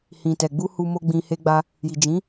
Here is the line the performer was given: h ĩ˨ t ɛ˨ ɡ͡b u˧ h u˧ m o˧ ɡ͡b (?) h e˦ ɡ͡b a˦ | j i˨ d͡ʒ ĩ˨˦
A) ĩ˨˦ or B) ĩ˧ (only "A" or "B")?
B